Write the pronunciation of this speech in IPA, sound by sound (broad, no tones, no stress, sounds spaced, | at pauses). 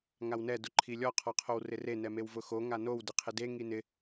ŋ a w n ɛ d ʊ ǃʰ i lʲ ɔ qʰ ɔ qʰ o w r ɪ r e n ɛ m e w v ʊ x o ŋ a n o w d ɪ qʰ ɪ d e ŋ i n ɪ